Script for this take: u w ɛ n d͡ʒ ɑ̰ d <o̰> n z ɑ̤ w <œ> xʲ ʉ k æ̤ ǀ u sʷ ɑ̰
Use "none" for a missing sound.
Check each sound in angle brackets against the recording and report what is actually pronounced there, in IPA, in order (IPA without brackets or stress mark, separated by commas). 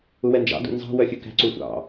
ṵ, œ